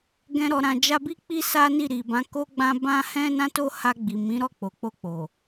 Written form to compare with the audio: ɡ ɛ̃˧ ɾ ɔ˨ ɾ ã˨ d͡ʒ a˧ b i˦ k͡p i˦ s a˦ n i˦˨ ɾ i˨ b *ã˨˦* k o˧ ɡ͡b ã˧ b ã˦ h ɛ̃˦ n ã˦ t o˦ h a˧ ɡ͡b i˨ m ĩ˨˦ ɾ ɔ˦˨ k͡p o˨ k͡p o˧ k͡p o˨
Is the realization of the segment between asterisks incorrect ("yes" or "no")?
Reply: no